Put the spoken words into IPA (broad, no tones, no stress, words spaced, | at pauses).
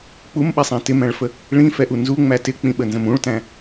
k͡pumɓɛsˤæ̃ tɪmæ̃ɭfə | ɭĩfɛʔu nzuŋ͡mæ tɪk͡pĩɓənzə̃m ũɭtæ̃